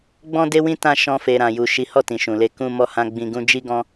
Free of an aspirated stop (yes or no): yes